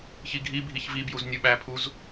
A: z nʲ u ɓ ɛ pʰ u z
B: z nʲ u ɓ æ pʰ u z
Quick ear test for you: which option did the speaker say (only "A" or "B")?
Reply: B